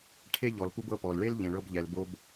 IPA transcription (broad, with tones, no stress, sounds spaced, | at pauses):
ʈʰ e˥ ʎ ɔ˩ l p u˧ b ɤ˧ p ɔ˩ l ɭ e˥ l ʎ ẽ˩ ɭ ɤ˧ b ʎ ɛ˩ l b o˧ b